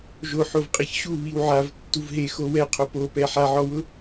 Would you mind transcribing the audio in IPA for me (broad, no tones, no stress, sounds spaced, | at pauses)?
ʒ o ħ o v qʼ ɪ ç ɕ u β i w ʕ a v tː u v ɦ e x o w ɛ qʰ o p o p ɛ ħ a ʕ ɔ w ʊ